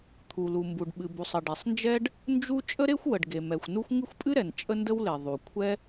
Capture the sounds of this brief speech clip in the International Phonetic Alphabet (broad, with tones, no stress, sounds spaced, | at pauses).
t̪ʰ u˩ l u˩ m b u˩ ɖ ɓ ɨ˩ b u˩ sˤ ə˩ ɖ e˩ sˤ n d͡ʒ ɛ˥ ɖ | n d͡ʒ u˥ t͡ʃʼ ə˥ ɾ e˥ xʷ w ə˩ ɖ ɡ e˩ m ɛ˩ xʷ n u˥ xʷ ŋ ɨ˥ xʷ pʼ ɨ˥ ɾ ɛ˩ n t͡ʃʼ ə˥ n d ə˥ w l e˩ ðˤ u˩ kʷʰ ɛ˥